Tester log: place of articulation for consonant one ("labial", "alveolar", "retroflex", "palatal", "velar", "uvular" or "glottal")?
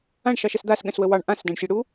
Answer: retroflex